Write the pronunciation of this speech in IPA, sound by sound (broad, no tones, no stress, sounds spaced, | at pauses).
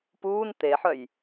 p uː n t̪ e ħ œ j